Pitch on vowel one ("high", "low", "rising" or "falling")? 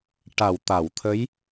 low